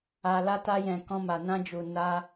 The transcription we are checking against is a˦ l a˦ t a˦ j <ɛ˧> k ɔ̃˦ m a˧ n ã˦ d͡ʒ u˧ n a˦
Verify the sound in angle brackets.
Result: incorrect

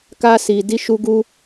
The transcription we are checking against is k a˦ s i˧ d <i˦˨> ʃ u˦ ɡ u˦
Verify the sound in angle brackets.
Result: incorrect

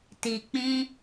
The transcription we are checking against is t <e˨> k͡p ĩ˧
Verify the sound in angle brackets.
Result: incorrect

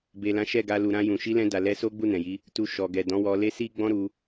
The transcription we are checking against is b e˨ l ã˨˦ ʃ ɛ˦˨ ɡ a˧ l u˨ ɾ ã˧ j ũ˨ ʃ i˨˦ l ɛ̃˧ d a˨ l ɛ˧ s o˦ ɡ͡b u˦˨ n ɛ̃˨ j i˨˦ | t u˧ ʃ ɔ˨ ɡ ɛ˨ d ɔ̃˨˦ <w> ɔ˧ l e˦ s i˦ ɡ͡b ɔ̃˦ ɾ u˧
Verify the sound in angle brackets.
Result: correct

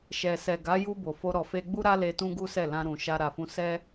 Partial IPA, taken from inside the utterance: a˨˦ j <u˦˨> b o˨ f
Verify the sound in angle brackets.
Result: incorrect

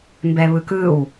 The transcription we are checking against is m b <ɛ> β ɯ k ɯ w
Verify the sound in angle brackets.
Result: correct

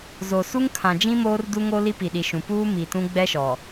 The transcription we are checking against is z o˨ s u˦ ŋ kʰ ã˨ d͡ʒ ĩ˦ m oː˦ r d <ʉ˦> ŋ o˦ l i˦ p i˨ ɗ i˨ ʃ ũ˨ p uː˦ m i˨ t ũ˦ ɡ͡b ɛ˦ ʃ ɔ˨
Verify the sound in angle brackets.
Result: incorrect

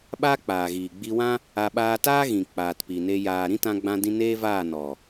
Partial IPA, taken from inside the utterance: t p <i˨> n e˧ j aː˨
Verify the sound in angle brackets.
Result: correct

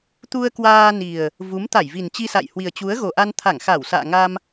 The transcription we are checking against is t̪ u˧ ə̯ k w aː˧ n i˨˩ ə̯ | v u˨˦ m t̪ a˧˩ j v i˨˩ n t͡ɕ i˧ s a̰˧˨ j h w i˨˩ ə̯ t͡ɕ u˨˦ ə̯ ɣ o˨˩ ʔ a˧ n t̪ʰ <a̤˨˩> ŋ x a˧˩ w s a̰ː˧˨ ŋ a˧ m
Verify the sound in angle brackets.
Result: incorrect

